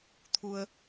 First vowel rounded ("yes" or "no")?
yes